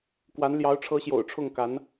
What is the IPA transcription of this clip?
k w a˧˥ n l j ɑ˧˥ ʊ̯ ʈ͡ʂʰ ɤ˧˥ ɕ j o̰˨˩ ʊ̯ ʈ͡ʂʰ ʊ˥˩ ŋ k a˧˥ n

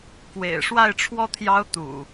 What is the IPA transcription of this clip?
k w ḛ˨˩ ɪ̯ ʂ w a˥˨ ɪ̯ ʈ͡ʂʰ w ɔ˥˨ t̪ʰ j ɑ˦ ʊ̯ t̪ ṵ˨˩

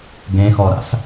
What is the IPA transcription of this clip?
ɡ ẽ x ɔ ɾ a̰ s

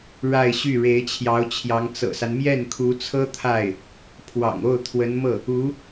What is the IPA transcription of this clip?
ɻ a˥˧ ɪ̯ ɕ y˥˩ ɻ e˧˥ ɪ̯ t͡ɕʰ j ɑ˧˥ ʊ̯ t͡ɕʰ j ɑ˧˥ ŋ t͡s ɤ̰˨˩ s a˦ n m j ɛ˥˩ n kʰ u˧˥ t͡sʰ ɤ˥ t̪ʰ a˥˩ ɪ̯ | pʰ w ɑ̰˨˩ ŋ o˥˩ ʊ̯ t̪ʰ w ə˧˥ n m ɤ˥˩ | u˧˥

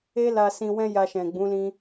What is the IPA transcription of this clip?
e˦ l a˧ s ĩ˧ w ɛ̃˦ j a˧ ʃ ɛ̃˨ ɡ͡b ũ˨˦ l ĩ˧

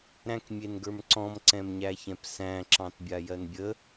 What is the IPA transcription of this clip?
ɾ æ̃ k mʲ e n ɡ ə˞ m ǀ ɔ̃ m ǀ ɛ̃ m ɲ æ ç ɛ̃ p s æ̃ ǁ ɑ̃ t bʲ a j ɜ n bʲ ə

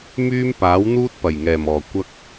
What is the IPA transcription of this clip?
m yː˥ m p aː˨˥ w n̪ uː˥ t̚ p ɐ˨˩ j ŋ ɛː˨˩ m ɔː˨˩ kʷ ɐ˥ k̚

